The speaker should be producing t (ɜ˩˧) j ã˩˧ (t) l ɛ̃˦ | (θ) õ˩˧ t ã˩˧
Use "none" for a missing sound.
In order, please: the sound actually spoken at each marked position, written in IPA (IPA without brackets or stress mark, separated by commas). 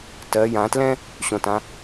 ɜ˩˧, t, ɕ